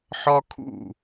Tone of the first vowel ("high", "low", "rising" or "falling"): high